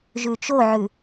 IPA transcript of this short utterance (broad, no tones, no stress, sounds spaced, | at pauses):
ʒ ʉ t͡ʃ o ʕ ʉ